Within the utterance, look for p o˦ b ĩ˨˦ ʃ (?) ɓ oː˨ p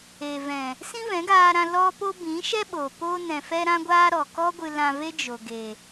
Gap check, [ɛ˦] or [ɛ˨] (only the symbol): ɛ˦